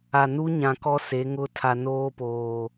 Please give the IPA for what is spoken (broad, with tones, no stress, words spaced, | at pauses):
a˨nu˦ɲã˨ kɔ˦se˨˦ŋʊ˦ tʰa˨noː˦poː˨